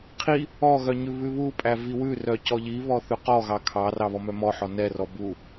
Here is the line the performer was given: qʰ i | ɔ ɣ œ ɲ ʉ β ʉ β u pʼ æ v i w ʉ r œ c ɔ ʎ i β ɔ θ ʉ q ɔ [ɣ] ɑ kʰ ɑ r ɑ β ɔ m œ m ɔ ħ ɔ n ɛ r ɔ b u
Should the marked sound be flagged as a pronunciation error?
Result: no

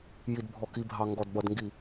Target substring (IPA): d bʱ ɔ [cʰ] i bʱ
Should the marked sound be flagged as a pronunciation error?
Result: yes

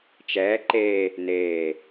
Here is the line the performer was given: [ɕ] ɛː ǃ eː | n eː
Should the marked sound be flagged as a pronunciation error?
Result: yes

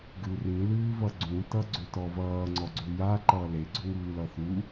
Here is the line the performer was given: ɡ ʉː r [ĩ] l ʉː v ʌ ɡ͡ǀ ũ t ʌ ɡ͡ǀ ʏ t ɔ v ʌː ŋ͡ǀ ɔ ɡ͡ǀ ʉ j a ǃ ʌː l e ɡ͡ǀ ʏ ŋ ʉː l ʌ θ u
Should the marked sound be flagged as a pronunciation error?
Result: no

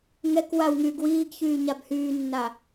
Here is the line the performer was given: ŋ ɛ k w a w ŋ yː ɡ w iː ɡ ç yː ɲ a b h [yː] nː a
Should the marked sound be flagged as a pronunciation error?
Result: no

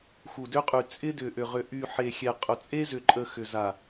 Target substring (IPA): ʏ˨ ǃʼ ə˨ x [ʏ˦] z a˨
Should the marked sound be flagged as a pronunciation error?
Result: yes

